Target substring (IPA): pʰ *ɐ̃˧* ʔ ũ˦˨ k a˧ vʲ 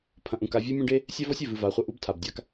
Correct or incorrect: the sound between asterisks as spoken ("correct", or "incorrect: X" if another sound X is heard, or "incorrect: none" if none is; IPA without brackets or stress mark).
correct